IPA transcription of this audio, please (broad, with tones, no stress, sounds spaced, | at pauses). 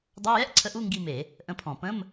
dˤ a˧˥˧ j ɛ˥ ʔ ǀʰ ə˧˥ ʔ u˧˥˧ ŋ ɡ i˦˨ m e˧˩˧ | ʔ ə̃˧˥ pʰ ɔ̃˧˩˧ p ə̃˧˥˧ m